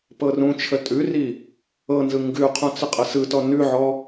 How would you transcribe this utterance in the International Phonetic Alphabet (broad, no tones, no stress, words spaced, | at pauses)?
pɤrũt͡ʃʰə tʼʉri | ɤnzɯ ŋɡʉqʰũ t͡səqʼəsɯtɔ nʉʕɔ